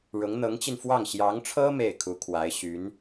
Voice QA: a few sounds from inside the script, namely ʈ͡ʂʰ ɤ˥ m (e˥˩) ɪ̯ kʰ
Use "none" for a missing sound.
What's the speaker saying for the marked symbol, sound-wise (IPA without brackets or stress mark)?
e˥˩